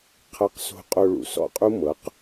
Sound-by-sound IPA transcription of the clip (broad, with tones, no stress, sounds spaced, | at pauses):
qʰ ɤ˧ q s o̤˧ qʼ o˧ ɭ ṵ˨ s ɔ̰˦ qʼ u˦ m ɤ˨˦ q